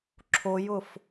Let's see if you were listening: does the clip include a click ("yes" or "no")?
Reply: yes